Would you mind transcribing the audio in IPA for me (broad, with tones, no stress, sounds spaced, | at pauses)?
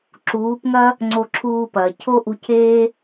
ǁ uː˨˦ p ŋ ɐ˦ | ŋ͡ǀ o˧ ǁʰ uː˧ p ɐː˨ cʰ o˦ ʔ u˧ cʰ eː˦